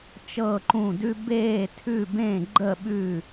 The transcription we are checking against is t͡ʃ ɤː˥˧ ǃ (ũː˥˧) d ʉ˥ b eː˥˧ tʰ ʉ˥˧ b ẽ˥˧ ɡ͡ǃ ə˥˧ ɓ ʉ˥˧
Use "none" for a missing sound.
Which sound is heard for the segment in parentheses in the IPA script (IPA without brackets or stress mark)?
ũː˥˧